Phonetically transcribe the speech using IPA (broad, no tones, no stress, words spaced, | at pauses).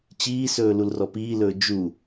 t͡ɕiːsɵː lulrɔpiːlɵː d͡ʒu